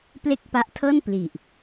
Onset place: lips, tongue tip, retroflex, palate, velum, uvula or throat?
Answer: lips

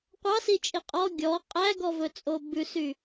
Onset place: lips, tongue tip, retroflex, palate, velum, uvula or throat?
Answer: uvula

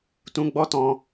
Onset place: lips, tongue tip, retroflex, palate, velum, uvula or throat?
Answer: tongue tip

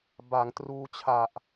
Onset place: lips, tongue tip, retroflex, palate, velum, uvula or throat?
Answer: lips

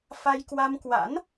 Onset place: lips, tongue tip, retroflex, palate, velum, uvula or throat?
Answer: lips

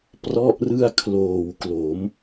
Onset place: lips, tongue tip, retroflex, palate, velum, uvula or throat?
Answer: lips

